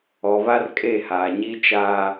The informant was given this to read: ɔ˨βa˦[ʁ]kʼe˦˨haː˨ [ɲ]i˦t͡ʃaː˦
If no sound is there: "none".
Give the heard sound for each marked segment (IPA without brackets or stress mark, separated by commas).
r, ɲ